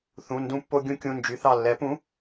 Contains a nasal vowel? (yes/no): yes